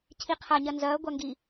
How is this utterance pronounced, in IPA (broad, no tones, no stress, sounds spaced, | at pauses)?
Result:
cʰ i qʰ a ɲ ɐ n z ɐː ɡʷ a ŋ ɡ i